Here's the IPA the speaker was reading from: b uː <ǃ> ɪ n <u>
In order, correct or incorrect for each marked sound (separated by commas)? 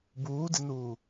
incorrect, incorrect